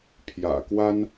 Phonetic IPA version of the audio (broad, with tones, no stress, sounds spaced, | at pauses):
pʰ j ä̰˨˩ k w a˦ n